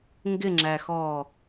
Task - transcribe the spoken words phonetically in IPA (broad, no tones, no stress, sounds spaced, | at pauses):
ŋ ɡ ɪ ŋ͡ǁ æ x ɔː